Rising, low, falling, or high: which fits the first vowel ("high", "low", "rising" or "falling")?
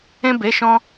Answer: high